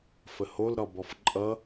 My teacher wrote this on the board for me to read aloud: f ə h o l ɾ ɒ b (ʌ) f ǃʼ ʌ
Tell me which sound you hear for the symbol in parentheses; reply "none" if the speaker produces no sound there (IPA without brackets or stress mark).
ɒ